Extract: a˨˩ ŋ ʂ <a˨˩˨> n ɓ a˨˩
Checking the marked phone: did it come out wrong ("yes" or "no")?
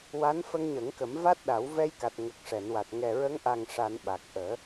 no